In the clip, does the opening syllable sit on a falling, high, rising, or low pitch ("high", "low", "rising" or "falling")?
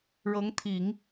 rising